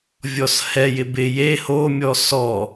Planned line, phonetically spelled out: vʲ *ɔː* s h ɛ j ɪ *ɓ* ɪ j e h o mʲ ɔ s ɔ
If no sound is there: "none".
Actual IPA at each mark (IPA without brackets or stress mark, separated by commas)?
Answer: ɔ, b